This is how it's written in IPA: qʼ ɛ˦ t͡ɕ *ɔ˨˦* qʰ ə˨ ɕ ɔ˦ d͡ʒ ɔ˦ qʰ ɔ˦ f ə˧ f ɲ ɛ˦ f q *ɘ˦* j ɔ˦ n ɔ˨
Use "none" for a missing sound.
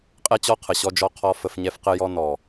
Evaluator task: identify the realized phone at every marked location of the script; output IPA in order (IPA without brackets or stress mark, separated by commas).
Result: ɔ˦, ɘ˦